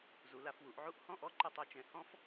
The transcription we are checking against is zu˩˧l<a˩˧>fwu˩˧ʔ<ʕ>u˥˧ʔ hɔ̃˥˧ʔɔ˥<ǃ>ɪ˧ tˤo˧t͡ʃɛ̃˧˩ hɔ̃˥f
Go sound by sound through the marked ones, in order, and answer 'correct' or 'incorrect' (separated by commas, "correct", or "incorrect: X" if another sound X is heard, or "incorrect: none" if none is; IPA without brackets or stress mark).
correct, correct, correct